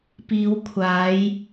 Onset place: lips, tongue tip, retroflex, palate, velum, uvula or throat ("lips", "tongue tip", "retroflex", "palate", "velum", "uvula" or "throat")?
lips